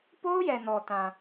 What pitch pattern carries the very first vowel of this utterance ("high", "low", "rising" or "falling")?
high